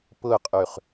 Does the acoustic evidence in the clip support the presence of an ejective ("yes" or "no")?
yes